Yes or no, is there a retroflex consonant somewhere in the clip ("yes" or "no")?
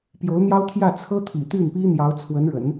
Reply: yes